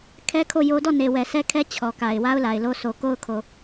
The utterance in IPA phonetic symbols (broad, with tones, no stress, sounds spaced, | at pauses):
kʰ ɛ˦ kʰ o˦˨ j o˦ d ɔ˦˨ n e˨ w ɛ˨ s ɛ˦ kʰ ɛ˦ t͡ɕʰ ɔ˨ k a˨ ɪ̯ w a˦ ʊ̯ l a˨ ɪ̯ l o˦ sʰ o˨ k o˦ ʊ̯ kʰ o˨